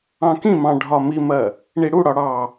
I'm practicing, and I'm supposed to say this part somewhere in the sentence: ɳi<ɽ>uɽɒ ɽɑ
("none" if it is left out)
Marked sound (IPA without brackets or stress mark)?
ɽ